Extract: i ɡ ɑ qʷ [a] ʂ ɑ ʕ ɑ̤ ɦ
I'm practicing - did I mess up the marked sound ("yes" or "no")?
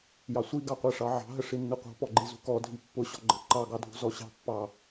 yes